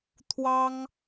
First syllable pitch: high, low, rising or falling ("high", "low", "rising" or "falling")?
high